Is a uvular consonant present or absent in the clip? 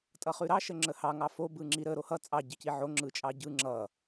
present